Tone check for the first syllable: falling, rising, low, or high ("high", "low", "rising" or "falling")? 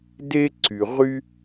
high